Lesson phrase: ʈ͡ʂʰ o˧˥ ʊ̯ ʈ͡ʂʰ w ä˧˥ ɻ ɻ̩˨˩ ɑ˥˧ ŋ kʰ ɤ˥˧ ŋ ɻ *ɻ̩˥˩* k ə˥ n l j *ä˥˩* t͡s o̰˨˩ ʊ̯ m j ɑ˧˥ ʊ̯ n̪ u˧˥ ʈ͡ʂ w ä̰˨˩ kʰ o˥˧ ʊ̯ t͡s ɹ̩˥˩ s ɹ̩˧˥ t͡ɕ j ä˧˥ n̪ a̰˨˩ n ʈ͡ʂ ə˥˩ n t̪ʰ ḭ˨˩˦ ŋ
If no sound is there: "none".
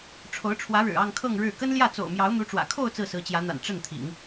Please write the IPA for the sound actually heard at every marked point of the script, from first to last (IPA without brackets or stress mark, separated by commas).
ɻ̩˥˩, ä˥˩